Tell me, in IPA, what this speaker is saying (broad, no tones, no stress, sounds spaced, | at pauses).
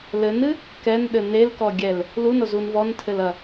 l ɘ n ɨ | k ɛ n ɗ ɘ n e l k ɔ ɡʲ ɛ l | l u n o z u n v ɔ n tʰ ɘ l ɐ